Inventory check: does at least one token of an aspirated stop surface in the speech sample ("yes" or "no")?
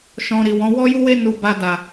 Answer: no